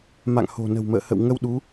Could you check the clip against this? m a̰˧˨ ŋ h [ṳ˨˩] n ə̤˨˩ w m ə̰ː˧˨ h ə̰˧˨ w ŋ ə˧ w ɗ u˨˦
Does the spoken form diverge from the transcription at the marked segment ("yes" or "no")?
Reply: yes